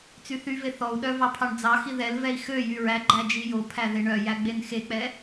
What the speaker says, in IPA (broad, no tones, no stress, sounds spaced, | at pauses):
t͡s y θ y v e θ ɔ u̯ ɗ œ v ɑ pʰ ɑ ɳ d͡z ɑ x i ð ɛ l v ɛ i̯ x ø j y ɹ æ ɡ͡ǃ æ d͡ʒ i j o pʰ æ ð e ɳ œ j æ ɡ͡b e n x e k͡p ɛ